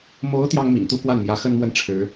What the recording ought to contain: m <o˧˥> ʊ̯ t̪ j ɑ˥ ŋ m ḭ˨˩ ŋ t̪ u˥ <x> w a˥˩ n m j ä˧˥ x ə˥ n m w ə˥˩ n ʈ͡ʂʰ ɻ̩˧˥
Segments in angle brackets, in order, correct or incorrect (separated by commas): correct, incorrect